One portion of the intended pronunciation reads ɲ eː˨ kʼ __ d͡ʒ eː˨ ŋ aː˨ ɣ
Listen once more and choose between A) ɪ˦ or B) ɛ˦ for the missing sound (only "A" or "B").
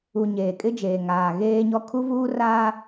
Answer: A